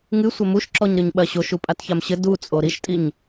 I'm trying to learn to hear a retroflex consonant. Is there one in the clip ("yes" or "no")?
no